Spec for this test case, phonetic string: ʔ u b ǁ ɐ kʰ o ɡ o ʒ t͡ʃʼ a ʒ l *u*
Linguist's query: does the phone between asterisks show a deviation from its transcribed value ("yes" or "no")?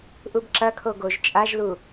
no